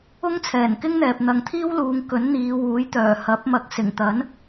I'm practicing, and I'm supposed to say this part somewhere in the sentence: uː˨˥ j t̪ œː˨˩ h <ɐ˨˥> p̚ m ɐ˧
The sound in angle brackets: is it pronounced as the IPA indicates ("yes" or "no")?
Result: yes